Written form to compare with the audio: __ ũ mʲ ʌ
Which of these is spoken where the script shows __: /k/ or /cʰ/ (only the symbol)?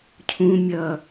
cʰ